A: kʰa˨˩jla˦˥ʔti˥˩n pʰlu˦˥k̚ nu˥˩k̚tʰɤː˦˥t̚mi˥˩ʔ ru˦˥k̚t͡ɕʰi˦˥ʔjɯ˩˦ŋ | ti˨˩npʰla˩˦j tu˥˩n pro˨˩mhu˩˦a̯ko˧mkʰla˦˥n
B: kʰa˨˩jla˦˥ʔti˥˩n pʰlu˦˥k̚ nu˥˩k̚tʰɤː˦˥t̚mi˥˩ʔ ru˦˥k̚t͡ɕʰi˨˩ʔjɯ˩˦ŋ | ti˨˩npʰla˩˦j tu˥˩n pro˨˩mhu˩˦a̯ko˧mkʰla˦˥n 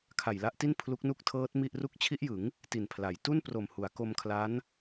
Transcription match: A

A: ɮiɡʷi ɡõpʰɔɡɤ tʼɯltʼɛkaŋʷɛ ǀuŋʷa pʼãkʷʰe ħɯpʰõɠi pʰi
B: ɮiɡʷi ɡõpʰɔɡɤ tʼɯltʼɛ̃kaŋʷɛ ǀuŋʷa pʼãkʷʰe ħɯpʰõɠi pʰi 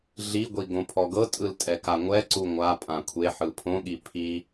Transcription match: A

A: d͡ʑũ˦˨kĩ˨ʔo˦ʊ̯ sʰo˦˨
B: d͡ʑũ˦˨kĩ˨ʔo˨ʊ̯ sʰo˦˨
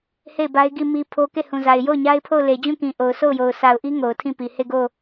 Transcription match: B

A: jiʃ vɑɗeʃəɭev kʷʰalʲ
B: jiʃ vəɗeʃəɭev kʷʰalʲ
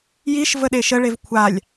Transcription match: B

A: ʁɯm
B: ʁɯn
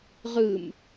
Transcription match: A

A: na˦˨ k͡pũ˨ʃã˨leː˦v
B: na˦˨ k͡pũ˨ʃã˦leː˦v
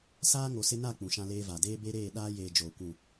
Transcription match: B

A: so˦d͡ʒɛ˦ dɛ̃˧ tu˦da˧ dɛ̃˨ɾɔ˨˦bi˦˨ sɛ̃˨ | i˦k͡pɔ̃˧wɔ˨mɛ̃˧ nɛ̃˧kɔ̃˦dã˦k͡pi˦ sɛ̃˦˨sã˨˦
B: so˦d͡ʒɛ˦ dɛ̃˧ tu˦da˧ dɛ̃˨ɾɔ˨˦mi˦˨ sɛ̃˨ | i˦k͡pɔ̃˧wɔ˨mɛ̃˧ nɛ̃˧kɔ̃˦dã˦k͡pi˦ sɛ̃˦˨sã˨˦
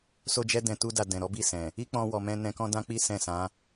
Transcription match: A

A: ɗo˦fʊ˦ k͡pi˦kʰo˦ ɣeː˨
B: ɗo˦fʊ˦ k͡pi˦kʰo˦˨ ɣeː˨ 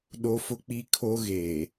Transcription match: A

